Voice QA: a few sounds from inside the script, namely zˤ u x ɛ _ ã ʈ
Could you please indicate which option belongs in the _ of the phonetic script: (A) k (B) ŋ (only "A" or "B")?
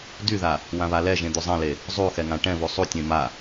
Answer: B